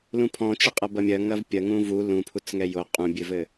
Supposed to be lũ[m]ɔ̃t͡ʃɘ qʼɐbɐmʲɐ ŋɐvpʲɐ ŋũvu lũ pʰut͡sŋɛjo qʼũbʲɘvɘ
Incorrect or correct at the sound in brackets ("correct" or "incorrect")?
incorrect